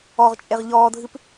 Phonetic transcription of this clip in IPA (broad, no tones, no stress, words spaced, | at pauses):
ɔʁt͡ʃʼeʁ ʎɔːdʱɨp